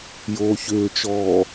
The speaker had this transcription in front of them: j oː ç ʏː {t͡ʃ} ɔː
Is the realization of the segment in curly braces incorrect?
no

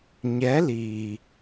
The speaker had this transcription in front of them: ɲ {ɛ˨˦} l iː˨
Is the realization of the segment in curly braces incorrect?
no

